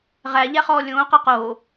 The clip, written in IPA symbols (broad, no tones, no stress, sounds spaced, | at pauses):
ʁ æ ʎ æ χ ɔː lʲ õː q a q oː